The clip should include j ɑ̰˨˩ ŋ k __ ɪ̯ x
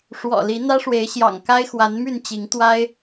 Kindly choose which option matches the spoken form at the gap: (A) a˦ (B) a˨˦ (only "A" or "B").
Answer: A